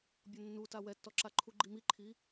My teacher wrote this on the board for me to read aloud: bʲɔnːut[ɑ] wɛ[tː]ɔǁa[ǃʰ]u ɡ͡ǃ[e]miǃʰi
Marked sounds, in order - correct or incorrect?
incorrect: a, correct, correct, incorrect: i

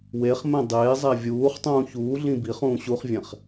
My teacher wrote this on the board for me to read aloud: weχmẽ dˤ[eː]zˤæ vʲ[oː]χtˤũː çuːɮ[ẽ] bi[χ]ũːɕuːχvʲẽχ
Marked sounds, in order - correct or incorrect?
correct, incorrect: uː, incorrect: ĩ, correct

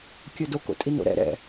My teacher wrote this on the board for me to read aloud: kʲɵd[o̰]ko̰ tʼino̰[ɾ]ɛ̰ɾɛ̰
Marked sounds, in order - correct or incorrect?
incorrect: o, correct

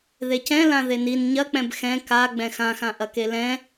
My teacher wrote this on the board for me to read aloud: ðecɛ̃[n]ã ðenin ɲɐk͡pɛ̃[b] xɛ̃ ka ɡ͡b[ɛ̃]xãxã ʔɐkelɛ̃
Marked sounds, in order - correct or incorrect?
incorrect: l, correct, correct

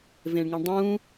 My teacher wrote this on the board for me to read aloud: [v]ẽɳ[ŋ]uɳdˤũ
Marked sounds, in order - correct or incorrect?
correct, correct

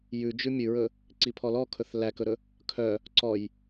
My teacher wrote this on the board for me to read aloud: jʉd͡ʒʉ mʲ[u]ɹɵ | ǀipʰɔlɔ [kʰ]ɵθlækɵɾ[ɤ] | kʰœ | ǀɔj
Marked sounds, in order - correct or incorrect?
incorrect: ʉ, correct, incorrect: ɵ

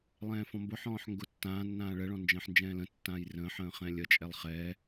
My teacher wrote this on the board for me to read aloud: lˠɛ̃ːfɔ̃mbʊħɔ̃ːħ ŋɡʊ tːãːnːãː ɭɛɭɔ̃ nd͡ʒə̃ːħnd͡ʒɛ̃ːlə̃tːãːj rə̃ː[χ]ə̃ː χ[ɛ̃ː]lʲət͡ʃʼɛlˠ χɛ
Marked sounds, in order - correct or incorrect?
incorrect: ħ, correct

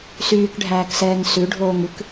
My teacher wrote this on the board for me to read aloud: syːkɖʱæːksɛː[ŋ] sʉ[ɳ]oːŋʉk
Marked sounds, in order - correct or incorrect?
correct, incorrect: ɖʱ

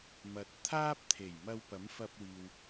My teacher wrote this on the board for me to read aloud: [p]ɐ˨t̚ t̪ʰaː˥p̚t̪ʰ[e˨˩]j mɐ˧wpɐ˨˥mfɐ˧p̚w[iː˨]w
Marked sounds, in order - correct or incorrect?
incorrect: m, correct, correct

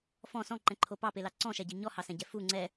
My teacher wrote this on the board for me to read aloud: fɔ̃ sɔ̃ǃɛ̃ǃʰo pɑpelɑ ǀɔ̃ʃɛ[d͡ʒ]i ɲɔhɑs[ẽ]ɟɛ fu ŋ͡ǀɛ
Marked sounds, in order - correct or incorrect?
incorrect: ɟ, incorrect: ɛ̃

